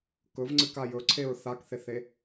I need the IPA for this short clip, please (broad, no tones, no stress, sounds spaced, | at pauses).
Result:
k ɵ v ŋ͡ǀ ɨ k a j ɵ ǀʰ e ɹ θ a k θ e θ e